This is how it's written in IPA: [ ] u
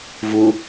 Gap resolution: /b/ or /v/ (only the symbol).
v